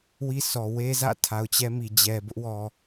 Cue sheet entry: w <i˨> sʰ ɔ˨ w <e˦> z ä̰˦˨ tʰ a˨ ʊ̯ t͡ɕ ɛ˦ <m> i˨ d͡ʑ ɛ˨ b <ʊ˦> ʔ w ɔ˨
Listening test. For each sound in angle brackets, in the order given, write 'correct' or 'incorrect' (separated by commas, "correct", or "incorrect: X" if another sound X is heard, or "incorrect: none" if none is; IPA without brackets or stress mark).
incorrect: i˦, correct, correct, correct